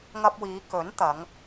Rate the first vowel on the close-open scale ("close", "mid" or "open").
open